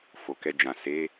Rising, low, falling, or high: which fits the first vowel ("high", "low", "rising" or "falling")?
low